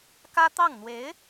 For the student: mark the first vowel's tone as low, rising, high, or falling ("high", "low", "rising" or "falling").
high